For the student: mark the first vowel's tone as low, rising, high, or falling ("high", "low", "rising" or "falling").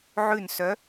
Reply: falling